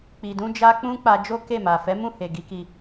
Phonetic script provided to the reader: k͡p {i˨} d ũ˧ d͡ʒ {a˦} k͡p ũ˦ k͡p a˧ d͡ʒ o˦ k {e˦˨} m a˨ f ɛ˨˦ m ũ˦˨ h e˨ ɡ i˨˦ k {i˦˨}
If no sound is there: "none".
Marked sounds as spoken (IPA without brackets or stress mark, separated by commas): i˨, a˧, e˦˨, i˧